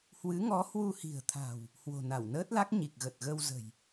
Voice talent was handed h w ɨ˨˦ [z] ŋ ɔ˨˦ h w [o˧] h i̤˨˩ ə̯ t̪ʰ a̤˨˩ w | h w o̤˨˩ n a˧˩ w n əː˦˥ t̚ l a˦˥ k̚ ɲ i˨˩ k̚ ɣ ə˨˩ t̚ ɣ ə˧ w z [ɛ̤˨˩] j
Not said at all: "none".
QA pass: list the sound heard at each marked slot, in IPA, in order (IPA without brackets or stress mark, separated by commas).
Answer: none, u˧, ə̤˨˩